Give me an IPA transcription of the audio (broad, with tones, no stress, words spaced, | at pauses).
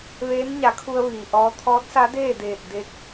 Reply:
ʋeː˧˥nɲa˩˧kʰu˧ə̯ ʋiː˩ʔɔː˧˥ t̪ʰɔː˧˥t̚sa˧˥deː˥˨deː˧˩t̚ de˧˥k̚